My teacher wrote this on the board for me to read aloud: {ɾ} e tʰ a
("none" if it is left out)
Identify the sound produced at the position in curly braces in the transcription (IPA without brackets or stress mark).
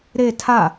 ɾ